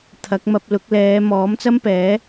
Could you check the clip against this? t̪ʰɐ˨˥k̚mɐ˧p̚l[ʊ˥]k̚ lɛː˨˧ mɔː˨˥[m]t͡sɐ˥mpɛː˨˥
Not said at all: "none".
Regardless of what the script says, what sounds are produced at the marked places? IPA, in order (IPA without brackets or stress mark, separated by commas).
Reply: ʊ˨˥, m